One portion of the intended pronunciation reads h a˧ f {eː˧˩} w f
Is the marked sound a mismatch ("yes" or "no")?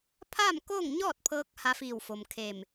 yes